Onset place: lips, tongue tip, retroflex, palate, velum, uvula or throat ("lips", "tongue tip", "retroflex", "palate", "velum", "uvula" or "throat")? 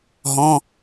throat